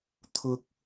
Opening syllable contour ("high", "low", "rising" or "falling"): low